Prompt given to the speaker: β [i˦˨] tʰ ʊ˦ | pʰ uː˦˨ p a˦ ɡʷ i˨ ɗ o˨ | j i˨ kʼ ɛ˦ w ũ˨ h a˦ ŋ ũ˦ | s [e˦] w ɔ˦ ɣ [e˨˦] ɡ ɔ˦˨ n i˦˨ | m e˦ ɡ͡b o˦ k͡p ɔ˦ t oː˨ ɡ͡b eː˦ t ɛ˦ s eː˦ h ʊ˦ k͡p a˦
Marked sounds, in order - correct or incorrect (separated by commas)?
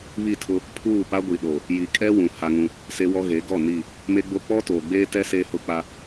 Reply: correct, correct, correct